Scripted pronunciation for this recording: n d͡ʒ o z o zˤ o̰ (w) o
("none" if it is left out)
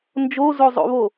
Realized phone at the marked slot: β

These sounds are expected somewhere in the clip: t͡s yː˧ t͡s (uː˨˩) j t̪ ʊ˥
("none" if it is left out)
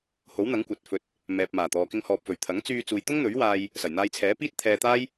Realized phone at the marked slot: uː˨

